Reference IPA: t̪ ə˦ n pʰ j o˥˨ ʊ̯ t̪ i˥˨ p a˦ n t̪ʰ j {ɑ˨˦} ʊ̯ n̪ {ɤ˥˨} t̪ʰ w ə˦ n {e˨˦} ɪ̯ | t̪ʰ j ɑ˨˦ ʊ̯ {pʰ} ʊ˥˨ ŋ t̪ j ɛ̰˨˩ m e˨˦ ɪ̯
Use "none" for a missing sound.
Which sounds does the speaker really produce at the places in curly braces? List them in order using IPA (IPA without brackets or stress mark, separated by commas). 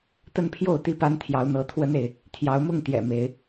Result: ɑ˨˦, ɤ˨˦, e˨, m